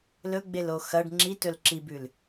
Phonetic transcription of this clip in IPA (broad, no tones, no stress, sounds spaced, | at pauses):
l ɵ ɡ͡b e l o x ɐ ɖ ŋ͡ǁ i t ɵ l ǁ i b ʉ l